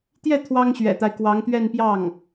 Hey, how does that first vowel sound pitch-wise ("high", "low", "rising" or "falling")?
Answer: falling